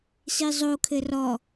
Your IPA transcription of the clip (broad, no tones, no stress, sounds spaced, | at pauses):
s i zˤ o kʰ ɘ r ɔ